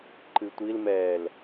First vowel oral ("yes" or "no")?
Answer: yes